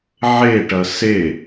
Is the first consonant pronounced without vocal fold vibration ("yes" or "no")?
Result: no